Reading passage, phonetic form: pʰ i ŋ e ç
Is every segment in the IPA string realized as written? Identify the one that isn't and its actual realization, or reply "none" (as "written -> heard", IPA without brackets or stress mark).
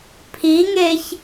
none